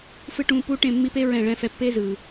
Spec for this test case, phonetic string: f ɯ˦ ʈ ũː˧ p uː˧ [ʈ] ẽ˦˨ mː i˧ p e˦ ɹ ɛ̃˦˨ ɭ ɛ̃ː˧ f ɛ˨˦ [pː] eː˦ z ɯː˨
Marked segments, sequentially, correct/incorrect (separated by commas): correct, correct